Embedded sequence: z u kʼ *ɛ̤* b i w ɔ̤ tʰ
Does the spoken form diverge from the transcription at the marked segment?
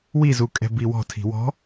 no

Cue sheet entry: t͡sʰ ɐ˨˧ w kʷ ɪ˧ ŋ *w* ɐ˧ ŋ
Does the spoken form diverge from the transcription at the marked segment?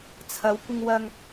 no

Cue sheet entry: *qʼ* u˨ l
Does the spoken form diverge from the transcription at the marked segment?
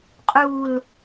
no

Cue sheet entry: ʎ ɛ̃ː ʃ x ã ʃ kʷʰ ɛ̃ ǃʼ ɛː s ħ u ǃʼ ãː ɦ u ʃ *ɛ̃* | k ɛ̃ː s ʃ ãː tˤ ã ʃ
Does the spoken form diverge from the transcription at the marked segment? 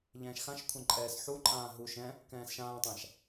no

